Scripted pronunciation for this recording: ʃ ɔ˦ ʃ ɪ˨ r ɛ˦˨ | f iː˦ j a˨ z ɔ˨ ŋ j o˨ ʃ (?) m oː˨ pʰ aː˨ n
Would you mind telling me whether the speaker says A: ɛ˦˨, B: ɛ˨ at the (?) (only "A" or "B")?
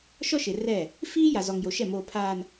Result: A